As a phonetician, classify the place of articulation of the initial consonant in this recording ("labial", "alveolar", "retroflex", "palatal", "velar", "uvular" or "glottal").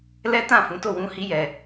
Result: alveolar